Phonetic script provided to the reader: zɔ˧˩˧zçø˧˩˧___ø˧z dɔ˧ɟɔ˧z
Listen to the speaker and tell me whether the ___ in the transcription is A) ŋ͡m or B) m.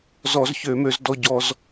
B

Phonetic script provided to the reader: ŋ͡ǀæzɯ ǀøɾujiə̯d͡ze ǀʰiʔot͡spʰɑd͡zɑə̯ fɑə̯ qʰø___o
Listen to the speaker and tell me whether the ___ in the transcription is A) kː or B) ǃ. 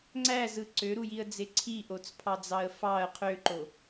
B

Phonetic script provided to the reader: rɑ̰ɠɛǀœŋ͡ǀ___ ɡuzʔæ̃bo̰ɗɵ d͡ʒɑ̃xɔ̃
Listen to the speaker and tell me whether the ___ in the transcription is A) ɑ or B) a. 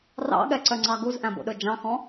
A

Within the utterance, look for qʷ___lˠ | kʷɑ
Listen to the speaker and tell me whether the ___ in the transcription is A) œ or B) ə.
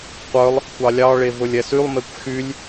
A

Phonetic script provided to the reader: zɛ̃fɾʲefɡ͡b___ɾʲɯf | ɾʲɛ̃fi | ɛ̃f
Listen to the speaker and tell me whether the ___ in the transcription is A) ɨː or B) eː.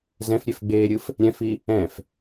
B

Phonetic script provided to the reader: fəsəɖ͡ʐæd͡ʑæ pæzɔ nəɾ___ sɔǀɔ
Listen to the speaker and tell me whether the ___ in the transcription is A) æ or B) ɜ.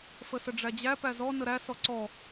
A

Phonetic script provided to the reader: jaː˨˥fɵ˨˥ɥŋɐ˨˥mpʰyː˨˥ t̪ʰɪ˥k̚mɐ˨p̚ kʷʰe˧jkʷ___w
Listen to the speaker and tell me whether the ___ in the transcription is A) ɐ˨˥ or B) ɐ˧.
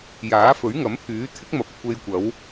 A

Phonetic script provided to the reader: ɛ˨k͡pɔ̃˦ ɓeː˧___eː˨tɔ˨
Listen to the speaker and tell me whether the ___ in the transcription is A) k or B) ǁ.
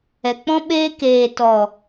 A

